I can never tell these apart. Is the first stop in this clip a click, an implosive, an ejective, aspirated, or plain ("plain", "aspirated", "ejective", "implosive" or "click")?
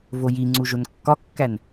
click